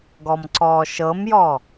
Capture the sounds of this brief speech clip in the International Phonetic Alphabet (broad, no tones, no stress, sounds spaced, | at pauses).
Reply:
ɡ ɔ m ǀ ɔː ʃ ɤ m j ɔ